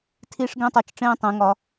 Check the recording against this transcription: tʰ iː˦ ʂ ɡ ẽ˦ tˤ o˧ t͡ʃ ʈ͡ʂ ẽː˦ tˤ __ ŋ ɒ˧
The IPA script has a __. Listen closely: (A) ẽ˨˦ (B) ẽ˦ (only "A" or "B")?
A